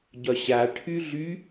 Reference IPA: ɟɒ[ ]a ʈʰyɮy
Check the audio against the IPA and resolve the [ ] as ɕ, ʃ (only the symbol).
ɕ